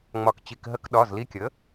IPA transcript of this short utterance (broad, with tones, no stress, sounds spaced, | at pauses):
ŋ͡m ɒ˩ k t͡ɕ i˩ k ɦ ə˧˩˧ k ɗ ɒ˩˧˩ z l i˧ kʲ ə˩˥